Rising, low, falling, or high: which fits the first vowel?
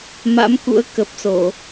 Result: rising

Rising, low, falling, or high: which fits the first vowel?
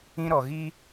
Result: high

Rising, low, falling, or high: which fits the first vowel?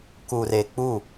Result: low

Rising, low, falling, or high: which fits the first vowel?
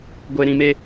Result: low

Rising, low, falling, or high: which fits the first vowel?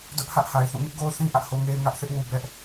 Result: high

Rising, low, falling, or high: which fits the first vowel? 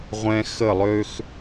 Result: high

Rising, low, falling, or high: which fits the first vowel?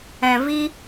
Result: low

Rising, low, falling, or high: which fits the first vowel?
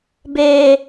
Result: high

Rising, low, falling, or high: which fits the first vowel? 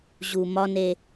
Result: low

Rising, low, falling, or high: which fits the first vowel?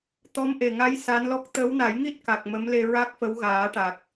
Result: rising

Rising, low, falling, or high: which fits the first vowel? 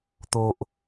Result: low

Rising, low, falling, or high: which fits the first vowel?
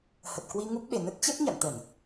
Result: low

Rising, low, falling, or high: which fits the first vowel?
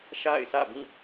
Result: falling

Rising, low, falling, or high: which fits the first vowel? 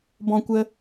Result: high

